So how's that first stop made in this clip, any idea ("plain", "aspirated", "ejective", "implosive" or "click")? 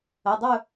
plain